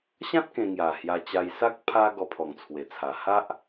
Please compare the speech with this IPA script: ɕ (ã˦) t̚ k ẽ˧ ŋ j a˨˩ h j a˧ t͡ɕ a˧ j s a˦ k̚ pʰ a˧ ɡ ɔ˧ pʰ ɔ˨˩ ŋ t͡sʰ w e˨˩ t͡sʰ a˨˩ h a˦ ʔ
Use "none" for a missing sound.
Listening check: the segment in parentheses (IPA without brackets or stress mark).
ã˦